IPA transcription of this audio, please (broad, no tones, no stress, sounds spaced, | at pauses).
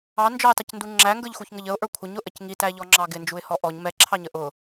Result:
ɑ n d͡ʒ ɔ ɪ̯ tˤ ɪ c n d u ŋ͡ǁ æ ŋ ɡ ə˞ ʎ x u ç ŋ ə ʎ ə ʊ̯ ʔ ə˞ kʷʰ ə ɲ ʊ ʔ ə c ŋ i t æ ʎ ɔ ŋ͡ǁ ɑ ɡ ɪ n d͡ʒ u ɪ̯ h ɔ ʔ ɔ ɲ m ɛ ǁʰ ɑ ɲ ə ʔ ʊ